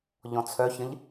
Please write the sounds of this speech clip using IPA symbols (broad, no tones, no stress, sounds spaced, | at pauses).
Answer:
ʎ ɔ̃ t͡sʰ œ ç ə̃ ʎ